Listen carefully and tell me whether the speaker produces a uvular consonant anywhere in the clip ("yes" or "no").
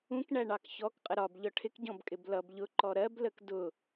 yes